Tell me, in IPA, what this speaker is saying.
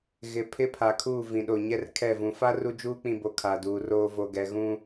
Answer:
ɣ ɪ˨ pʰ ɪ˦ pʰ a˨ kʰ uː˦˨ v ĩ˨ ɗ o˨ ɲ ɛ˦ r kʰ ɛ˦˨ v ũ˨ f a˦ r u˦ d͡ʒ uː˦ k͡p ĩ˨ b o˨ kʰ a˨ d uː˨ r oː˦ v o˨ ɡ ɛ˨ ɣ ũ˦

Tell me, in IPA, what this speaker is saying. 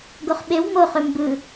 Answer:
ɡ o χ ɓ e w m o χ ø m b ɯ

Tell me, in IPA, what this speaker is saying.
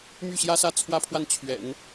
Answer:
m y˥˩ ɕ j ä˥ s ä˥˩ t͡sʰ w ä˥ pʰ w a˥˩ n t͡ɕʰ ɥ ɛ̰˨˩˦ n

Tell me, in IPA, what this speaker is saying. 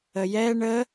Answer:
ə j ɛ ɳ ə

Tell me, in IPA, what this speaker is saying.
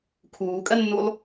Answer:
kʰ uː kʼ ɜ nː u lˠ

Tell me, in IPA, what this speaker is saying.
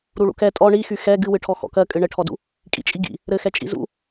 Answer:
ɾ u ɭ ṵ k ɛ tʼ ɔ ɳ i x y x ɛ ɡ ɨ w ɨ ʈʰ ɔ x ɔ̰ k ɜ kʼ ɨ ɳ ɘ ʈʰ ɔ d ṵ | kʼ ḭ t͡ʃʼ i ɡ ḭ | ɾ ɘ x ɛ t͡ʃʼ ḭ z ṵ

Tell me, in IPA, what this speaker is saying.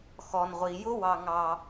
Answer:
x ɔ˩ n ʁʷ i˩ j ʊ˥ w ɑ˧ ŋ ɑ˧

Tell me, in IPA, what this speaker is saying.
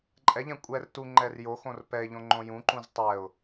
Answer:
ǃʼ ɛ ʎ ɛ̃ kʷʼ ɛ r t u ŋ͡ǃ ɛ r j o x õ r p ɛ ɪ̯ ʎ õ ŋ͡ǃ õ j ũ ǃ ũ z tˤ ɛ ʊ̯

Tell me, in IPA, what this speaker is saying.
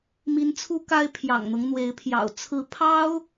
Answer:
m i˧˥ n t͡sʰ u˥ k a˥ ɪ̯ pʰ j ɑ̰˨˩ ŋ n̪ ɤ˦ ŋ n̪ w e˧˥ ɪ̯ pʰ j ɑ̰˨˩ ʊ̯ t͡sʰ ɹ̩˧˥ pʰ ɑ˥ ʊ̯

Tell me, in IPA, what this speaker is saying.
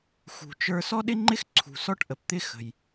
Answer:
x ṳ˩ t͡ʃ ə˞˧ s ɔ˥ ɗ ɪ˥ ŋ͡ǃ ɪ˥ x ǀʰ ṳ˩ s ɔ˥ ʈ ʔ ə˩ p t̪ ɪ˥ x ə̤˩ j

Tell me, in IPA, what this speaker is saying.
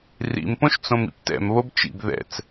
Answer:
r ḭ m p õ ʃ t͡s õ m ḭ p t ɛ̰ m β o b t͡ʃ ḭ b ð ɛ̰ t͡s

